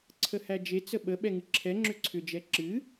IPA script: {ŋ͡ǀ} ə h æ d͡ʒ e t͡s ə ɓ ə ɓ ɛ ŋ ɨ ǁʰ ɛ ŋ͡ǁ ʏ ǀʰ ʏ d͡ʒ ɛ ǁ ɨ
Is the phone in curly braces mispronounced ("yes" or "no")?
yes